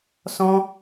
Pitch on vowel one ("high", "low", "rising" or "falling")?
high